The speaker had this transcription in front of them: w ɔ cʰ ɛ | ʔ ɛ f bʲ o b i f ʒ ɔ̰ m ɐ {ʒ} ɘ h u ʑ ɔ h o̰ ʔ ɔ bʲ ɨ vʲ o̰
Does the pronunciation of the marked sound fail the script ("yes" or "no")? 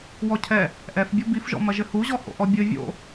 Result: no